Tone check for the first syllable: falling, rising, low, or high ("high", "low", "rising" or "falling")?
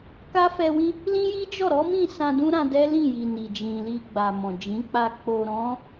high